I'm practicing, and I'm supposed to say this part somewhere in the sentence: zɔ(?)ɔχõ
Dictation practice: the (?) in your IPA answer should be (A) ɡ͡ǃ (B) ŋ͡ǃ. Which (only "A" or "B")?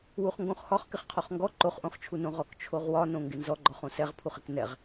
A